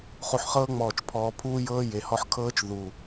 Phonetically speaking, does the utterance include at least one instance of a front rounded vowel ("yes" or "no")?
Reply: no